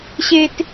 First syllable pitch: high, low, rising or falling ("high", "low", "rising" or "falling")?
high